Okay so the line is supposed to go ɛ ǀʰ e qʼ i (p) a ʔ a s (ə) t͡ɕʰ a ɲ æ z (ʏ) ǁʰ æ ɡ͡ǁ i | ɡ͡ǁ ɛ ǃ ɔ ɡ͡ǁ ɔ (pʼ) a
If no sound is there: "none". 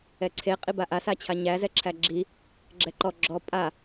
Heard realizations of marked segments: b, a, ɛ, pʼ

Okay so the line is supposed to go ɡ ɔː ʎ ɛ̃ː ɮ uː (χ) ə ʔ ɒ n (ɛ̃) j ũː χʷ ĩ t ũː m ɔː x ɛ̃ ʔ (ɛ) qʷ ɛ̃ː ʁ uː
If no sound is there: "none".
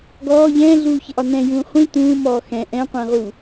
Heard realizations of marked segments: ç, ɛ̃, ɛ̃

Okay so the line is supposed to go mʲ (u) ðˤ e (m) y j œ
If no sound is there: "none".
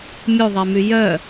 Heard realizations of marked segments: u, m

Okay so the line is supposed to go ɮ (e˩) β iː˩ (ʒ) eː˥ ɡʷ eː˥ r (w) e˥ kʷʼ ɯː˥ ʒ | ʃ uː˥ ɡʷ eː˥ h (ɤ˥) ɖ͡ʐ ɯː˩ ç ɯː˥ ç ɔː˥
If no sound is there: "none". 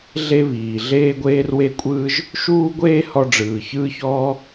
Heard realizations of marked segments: e˥, ɮ, w, ɔ˥

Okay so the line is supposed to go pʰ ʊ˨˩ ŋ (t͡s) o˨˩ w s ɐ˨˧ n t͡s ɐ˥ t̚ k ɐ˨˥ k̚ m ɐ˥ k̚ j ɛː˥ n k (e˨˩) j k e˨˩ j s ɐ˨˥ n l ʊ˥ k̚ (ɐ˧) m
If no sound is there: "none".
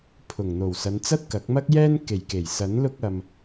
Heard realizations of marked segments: n̪, e˨˩, ɐ˧

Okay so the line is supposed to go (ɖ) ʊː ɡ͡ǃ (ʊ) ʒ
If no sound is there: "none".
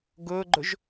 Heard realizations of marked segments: ɡ, ʊ

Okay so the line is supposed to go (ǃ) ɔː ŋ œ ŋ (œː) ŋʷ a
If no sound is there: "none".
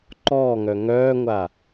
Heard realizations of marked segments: ǃ, œː

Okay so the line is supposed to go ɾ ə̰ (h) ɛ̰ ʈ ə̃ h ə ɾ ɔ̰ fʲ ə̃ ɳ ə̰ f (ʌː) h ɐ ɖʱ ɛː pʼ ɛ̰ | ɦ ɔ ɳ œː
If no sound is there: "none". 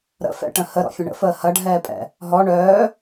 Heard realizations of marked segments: f, əː

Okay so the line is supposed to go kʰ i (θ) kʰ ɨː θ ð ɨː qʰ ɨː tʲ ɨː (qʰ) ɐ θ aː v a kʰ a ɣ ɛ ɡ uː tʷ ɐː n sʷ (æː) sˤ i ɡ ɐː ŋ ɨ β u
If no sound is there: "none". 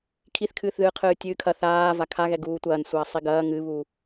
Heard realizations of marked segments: θ, kʰ, ɐː

